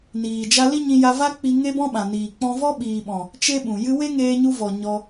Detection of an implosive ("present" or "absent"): present